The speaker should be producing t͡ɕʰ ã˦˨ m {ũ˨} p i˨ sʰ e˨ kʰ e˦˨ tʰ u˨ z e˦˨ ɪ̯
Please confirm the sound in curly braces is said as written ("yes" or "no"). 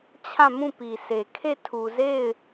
no